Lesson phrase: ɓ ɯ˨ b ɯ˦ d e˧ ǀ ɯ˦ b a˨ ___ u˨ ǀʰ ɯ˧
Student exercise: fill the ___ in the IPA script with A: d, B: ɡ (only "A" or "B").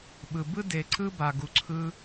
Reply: B